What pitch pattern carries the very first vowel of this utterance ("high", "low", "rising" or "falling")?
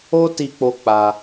high